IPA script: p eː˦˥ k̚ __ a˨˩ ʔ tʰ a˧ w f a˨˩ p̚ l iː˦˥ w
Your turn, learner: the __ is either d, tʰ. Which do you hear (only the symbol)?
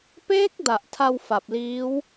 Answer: d